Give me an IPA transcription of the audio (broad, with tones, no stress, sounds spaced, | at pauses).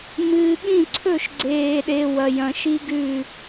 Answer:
m ɨː˨ ɠ ĩ˦˨ ǀʰ ɵ˦˨ ʃ ɡ͡ǀ eː˨ ɗ e˨ w ɐ˨ j ɐ̃˨ ʃ i˦ ɡ ʉ˦˨